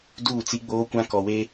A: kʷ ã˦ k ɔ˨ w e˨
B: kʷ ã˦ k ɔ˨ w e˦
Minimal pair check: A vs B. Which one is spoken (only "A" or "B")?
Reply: B